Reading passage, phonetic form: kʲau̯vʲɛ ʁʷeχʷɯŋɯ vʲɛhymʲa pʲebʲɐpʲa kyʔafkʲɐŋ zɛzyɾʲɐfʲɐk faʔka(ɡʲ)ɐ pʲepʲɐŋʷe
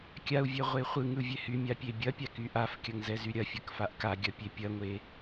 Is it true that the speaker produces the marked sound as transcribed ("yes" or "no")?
yes